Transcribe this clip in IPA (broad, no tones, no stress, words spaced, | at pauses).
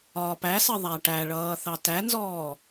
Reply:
ɒːpæsɜ ðˤæʈæɭʌː θɑtænzɔː